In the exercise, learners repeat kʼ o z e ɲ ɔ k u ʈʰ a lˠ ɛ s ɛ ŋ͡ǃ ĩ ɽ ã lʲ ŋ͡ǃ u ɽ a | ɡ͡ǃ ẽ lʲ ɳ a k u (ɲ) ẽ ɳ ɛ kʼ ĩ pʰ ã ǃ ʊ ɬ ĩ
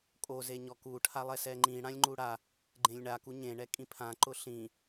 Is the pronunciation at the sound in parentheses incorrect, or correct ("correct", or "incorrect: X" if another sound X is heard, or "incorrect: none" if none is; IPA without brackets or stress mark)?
correct